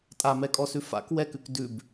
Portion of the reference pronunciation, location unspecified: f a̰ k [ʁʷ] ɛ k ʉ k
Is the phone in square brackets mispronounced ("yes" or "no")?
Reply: yes